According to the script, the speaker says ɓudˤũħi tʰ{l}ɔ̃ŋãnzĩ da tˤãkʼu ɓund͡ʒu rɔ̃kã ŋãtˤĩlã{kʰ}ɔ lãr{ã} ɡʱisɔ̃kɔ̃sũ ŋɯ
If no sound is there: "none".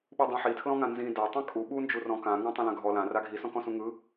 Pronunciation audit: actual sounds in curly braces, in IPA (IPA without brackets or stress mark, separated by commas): l, ɡʱ, a